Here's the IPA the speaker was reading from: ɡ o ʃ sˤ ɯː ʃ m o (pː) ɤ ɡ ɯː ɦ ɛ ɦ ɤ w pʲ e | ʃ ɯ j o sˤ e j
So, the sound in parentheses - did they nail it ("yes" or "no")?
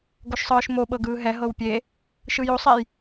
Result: no